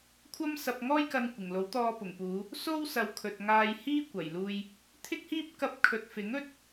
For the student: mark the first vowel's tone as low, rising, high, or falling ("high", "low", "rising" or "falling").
high